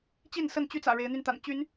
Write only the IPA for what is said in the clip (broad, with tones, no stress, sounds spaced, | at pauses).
t͡ɕ i˥˨ n s ə˥˨ n t͡ɕ y˦ t͡s ä̰˨˩ ɻ e˨˦ ɪ̯ n̪ y˧ n t̪ a̰˨˩ n t͡ɕ y˨˦ n